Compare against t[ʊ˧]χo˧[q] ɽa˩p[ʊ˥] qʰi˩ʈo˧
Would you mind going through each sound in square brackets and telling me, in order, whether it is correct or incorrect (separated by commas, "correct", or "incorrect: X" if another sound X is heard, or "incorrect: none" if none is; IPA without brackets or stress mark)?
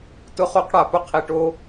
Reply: correct, correct, correct